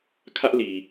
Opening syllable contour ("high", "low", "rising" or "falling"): high